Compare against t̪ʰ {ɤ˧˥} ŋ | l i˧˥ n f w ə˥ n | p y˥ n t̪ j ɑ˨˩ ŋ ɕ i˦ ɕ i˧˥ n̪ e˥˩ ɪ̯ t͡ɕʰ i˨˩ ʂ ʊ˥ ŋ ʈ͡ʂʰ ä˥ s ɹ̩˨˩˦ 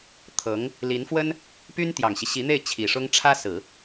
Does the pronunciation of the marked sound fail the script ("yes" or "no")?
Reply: no